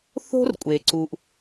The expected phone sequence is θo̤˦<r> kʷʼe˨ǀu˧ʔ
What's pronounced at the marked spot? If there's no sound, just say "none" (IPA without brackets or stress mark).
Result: r